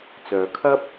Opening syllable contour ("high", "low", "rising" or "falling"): low